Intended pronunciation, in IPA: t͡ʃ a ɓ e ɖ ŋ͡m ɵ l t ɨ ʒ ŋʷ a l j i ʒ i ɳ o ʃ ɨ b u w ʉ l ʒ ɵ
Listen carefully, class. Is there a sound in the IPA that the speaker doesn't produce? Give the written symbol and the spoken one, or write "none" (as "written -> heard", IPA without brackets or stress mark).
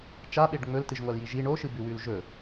u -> ʉ